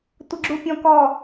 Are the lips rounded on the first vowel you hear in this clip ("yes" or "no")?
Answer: no